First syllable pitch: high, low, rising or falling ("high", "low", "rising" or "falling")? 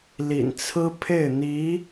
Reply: low